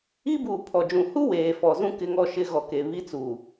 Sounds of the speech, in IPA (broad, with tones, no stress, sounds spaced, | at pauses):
i˦ b uː˨ pʰ ɔ˨ d͡ʒ ũ˨ h u˦ w eː˨ f ɔ˨ z ũ˦ k ɪ˦ ŋ ɔ˦ ʃ ɪ˦ ɣ ɔ˨ k e˨ β i˦ t͡s uː˨